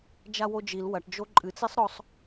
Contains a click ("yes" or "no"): yes